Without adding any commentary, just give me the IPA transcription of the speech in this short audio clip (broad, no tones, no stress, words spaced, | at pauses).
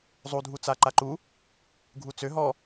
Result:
zˤudʱut͡sa ǃaǃu | ɡʱut͡sø ɦɔ